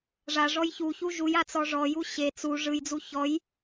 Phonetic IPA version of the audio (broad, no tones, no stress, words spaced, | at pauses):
ʐaʐɔj çuçu ʒuja t͡sɔʐɔju ɕe t͡su ʐɯjd͡zu çɔj